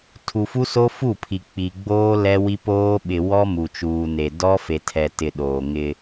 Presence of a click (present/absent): absent